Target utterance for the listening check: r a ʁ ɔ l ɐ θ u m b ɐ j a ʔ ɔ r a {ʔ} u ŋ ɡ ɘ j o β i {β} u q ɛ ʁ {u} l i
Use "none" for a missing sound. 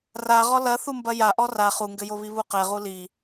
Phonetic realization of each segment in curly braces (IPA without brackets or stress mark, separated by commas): χ, β, u